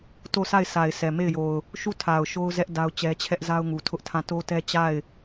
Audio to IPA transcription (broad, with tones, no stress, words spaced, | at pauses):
to˦˨sʰa˦˨ɪ̯sʰa˨ɪ̯ sɛ˨me˦˨ɪ̯jo˨ʊ̯ | ʃu˦˨tʰa˨ʊ̯ ʃo˦ʊ̯zɛ˦ʔ da˦ʊ̯t͡ɕɛ˦t͡ɕʰɛ˦ʔ za˦ʊ̯ŋu˨tʰʊ˦ʔtʰã˦˨ to˦tɛ˦ t͡ɕa˦˨ɪ̯